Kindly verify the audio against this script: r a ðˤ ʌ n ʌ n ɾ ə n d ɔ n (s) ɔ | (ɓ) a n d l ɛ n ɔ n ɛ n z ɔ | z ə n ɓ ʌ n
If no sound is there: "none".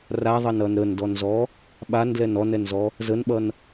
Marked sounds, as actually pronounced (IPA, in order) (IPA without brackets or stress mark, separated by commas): z, ɓ